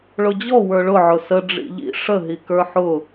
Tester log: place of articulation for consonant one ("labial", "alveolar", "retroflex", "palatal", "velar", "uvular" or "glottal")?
retroflex